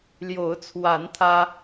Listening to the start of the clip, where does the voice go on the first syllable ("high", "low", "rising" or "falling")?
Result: rising